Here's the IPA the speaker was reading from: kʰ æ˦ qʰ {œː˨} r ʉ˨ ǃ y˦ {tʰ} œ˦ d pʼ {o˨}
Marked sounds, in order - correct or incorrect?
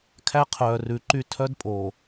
correct, correct, correct

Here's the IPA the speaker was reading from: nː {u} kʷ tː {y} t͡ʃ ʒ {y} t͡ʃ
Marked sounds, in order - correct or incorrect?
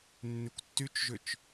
incorrect: y, correct, incorrect: ʏ

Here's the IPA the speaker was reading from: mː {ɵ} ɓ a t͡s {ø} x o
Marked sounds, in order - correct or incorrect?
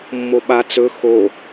incorrect: o, incorrect: ɵ

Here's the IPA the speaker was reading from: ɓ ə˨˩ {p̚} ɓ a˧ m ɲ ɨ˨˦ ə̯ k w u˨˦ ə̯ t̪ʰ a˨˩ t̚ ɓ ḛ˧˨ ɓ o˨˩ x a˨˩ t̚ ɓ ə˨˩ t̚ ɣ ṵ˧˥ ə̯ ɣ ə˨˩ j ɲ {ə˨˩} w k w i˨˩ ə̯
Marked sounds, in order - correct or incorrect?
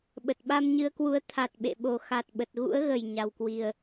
incorrect: t̚, incorrect: a˨˩

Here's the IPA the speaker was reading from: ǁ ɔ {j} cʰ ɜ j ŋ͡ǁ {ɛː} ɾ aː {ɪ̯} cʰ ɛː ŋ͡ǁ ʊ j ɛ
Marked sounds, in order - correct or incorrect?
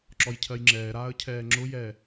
correct, correct, incorrect: ə̯

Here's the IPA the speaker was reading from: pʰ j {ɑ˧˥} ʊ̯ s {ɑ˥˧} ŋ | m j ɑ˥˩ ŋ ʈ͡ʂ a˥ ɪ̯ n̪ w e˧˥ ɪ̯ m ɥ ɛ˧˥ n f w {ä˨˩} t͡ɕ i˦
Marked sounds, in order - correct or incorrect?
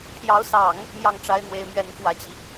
correct, incorrect: ɑ˨˩˦, correct

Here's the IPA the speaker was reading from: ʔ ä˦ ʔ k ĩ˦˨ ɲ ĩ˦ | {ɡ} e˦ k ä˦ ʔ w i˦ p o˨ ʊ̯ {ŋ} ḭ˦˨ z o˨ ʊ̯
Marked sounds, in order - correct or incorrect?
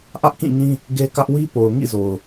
correct, correct

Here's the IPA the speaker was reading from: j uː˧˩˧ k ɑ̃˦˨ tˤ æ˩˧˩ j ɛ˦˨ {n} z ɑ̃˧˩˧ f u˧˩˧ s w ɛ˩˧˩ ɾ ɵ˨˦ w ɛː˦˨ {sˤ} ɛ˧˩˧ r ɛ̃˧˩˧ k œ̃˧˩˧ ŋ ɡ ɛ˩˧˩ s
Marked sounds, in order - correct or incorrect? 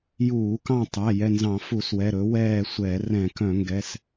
correct, incorrect: sʷ

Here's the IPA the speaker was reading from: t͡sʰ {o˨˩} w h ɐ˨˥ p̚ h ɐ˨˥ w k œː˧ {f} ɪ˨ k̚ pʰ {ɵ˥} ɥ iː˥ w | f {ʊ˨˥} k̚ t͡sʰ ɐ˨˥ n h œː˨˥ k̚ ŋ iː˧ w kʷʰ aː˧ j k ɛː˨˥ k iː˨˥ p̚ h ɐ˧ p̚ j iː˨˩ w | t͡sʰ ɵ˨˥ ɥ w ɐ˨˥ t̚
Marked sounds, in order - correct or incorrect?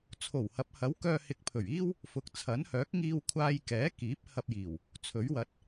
correct, incorrect: h, incorrect: ɵ˨˩, incorrect: ʊ˨

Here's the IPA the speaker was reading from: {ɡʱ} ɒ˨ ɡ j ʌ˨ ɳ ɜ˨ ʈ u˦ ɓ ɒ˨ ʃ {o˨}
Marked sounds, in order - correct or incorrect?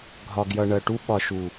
correct, incorrect: u˨

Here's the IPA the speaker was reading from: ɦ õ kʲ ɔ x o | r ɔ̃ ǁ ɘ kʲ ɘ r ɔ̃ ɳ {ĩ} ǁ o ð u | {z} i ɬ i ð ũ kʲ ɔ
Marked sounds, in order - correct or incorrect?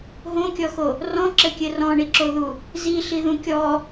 incorrect: i, correct

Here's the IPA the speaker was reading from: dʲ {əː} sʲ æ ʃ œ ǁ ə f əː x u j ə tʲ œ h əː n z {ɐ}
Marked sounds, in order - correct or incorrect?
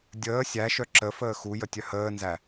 correct, incorrect: æ

